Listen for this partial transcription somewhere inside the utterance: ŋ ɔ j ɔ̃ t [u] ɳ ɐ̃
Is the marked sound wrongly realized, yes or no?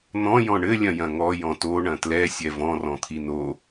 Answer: yes